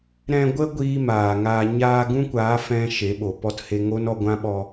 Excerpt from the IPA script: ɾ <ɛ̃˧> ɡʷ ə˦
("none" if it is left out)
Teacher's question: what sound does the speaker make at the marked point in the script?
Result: ɛ̃˧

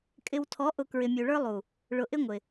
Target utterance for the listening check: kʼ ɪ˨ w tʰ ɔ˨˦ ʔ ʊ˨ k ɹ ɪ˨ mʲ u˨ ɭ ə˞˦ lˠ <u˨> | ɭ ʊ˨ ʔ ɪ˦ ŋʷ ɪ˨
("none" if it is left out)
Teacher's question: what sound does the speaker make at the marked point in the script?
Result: u˨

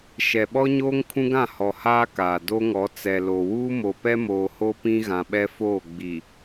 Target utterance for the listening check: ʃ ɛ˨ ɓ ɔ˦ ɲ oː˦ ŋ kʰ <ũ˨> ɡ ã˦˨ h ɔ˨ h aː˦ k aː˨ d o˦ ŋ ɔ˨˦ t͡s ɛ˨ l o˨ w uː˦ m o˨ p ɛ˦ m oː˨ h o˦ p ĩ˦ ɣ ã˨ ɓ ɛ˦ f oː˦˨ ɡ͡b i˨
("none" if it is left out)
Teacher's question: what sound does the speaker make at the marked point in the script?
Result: ũ˦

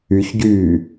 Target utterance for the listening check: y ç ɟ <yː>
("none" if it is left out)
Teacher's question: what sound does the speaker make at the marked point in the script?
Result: yː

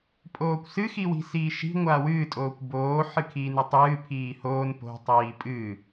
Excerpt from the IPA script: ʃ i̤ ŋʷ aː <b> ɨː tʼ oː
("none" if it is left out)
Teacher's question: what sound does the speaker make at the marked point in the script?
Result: w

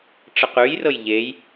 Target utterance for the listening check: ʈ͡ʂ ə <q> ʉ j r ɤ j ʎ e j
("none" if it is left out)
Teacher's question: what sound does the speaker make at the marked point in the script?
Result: q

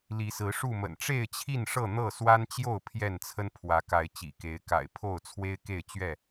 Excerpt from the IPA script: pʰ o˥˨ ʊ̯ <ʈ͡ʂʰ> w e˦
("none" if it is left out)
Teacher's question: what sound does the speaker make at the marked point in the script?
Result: t͡sʰ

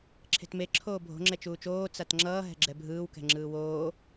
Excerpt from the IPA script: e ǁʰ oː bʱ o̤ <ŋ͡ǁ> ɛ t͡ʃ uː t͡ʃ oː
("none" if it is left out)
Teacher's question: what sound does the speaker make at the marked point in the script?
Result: ŋ͡ǁ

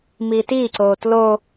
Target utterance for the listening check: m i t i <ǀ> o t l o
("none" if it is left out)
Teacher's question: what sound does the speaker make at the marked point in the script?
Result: ǀ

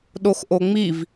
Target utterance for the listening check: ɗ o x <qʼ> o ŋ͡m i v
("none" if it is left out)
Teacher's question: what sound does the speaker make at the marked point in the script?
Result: ʔ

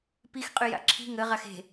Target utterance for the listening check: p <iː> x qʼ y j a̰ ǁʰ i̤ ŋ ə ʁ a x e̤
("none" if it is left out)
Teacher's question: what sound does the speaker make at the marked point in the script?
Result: i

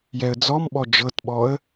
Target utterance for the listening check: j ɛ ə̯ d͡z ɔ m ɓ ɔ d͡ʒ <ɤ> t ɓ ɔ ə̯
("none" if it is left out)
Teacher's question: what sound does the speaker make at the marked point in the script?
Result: ɤ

